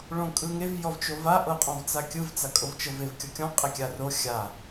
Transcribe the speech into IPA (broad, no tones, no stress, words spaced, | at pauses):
ɭõkʼɯŋev jɔvt͡ʃova ʔɤqʼɔ̃vt͡sakʲɯv t͡sakʼovt͡ʃɤvev kʲɔkʲɔ̃ qʼekʲaro xʲa